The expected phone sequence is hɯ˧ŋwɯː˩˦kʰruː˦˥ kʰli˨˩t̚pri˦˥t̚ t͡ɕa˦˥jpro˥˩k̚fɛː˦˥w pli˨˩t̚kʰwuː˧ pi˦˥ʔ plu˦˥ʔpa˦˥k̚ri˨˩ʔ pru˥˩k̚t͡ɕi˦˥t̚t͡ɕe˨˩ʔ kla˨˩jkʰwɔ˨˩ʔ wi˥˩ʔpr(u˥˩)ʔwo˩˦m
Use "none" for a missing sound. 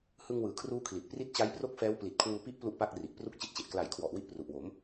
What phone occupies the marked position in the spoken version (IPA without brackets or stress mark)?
u˨˩